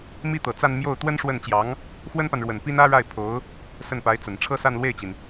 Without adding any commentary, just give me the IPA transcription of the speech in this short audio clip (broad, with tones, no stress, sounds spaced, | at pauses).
m i˥˩ t̪ ɤ˨˩ t͡s a˥˧ n m j o˥˩ ʊ̯ t̪ w ə˥ n ʂ w ə˥˩ n t͡ɕ j ɑ˧˥ ŋ | x w ə˥ n p a˨ n ɻ w ə˨˩ n p i˥ n ä˥ ɻ a˥˩ ɪ̯ pʰ o˧˥ ʊ̯ | s ə˥˩ n p a˧˥ ɪ̯ t͡s ə˨˩ n ʈ͡ʂʰ ɤ˥˧ s a˥˧ n l w e˥˩ ɪ̯ t͡ɕ i˩ n